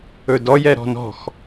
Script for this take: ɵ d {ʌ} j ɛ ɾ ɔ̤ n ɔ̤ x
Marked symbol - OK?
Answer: no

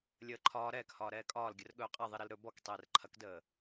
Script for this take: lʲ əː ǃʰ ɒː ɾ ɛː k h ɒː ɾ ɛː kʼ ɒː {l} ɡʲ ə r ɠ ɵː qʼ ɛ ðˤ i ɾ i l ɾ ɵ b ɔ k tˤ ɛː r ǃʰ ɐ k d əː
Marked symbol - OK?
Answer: yes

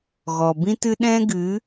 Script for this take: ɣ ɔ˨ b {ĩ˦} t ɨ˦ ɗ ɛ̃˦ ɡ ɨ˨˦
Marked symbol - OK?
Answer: yes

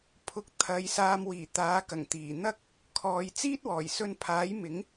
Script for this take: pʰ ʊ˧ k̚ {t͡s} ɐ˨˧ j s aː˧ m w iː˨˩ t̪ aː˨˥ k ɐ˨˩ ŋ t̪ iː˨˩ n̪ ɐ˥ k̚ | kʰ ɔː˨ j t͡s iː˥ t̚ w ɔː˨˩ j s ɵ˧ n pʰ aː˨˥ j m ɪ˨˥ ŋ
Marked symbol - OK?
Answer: no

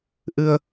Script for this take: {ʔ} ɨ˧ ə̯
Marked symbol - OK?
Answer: yes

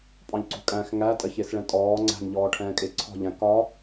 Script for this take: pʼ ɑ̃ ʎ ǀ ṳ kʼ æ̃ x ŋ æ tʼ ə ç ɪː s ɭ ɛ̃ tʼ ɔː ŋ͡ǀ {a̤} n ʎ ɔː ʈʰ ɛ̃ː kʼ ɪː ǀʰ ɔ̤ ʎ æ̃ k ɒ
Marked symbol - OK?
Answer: no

